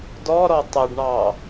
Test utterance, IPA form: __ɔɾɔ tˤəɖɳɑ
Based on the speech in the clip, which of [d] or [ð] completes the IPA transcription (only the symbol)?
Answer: d